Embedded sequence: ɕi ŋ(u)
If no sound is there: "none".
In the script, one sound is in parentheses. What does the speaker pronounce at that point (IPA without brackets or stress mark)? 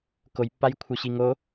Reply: o